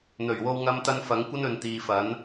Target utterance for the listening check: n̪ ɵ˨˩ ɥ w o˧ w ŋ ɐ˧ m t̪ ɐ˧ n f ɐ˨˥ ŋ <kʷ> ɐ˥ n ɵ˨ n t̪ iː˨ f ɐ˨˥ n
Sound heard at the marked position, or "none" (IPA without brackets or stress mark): kʷ